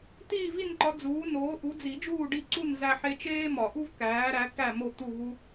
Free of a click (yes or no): no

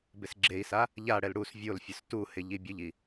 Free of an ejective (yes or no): yes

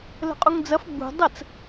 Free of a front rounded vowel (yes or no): yes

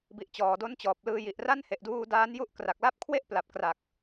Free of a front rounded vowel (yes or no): yes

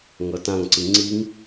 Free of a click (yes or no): no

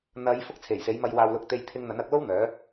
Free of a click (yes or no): yes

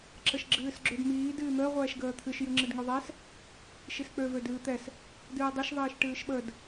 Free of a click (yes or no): no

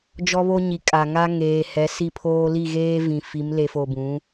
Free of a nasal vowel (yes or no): no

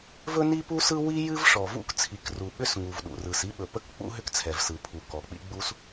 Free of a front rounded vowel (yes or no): no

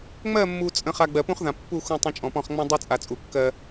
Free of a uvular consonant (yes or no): no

